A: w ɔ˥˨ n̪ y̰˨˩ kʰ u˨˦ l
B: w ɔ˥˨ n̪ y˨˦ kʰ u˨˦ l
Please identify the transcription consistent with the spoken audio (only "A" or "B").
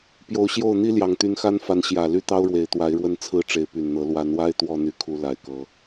B